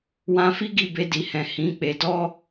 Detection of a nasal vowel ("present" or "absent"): present